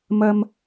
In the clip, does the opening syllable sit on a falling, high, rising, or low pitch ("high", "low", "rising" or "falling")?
high